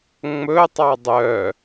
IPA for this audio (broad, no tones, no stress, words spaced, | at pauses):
ŋ͡mɵtˤɑ dˤœ